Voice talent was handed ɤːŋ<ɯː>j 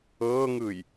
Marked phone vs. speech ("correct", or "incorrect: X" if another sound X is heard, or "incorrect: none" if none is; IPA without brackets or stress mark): correct